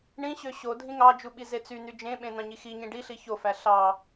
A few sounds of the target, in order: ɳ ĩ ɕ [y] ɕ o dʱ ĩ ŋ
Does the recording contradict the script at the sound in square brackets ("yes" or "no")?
yes